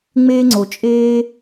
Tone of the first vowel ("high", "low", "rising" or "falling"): high